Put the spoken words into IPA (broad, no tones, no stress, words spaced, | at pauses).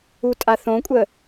utʼaθõkʷʼə